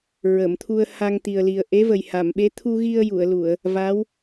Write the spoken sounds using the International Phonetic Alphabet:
ɹə˨˩˨mt̪ʰu˧ə̯ ha˧ŋt̪i˨˩ə̯li˨˩ə̯ ʔe˧˥və˨˩jha˨˩˨mɓe˧˥ t̪ʰu˧ɣi˧ə̯ ju˨˩˨ə̯lu˨˩˨ə̯ | va˧˥w

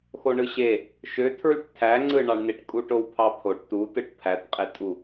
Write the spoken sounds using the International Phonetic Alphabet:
xoɳɯɕe | ʃøtʰɹyʈ tʰæŋ͡ǀɯɳɑɳneʈ kʼuʈowpʰɑpʰoʈ tu tɯʈpʰætqʼetʼu

